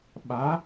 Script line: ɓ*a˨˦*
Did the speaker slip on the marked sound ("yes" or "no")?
no